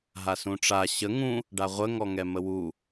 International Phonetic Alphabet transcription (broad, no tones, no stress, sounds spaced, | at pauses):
ɦ a s ũ ʈ͡ʂ a ɕ ə ŋ ũ | ɖ a ʁʷ ə ŋ ɔ ŋ ɛ m ə w u